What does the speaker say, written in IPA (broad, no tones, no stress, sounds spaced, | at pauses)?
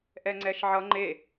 ʔ ɛ ŋ͡ǀ ɛ ʃ ʕ ʌ ŋ͡ǃ e